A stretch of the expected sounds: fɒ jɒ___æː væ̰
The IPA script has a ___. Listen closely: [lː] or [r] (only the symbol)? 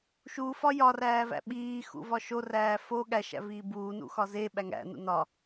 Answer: r